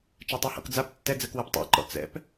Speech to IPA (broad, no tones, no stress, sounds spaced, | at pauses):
t͡ʃ a tˤ a h ɔ̰ k d͡z a p tː ɛ d͡z ɜ k w ɜ p tˤ a̰ ǃ ɔ̰ t͡s ɛ̰ p